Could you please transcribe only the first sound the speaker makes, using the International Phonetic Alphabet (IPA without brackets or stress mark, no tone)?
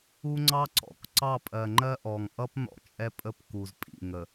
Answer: u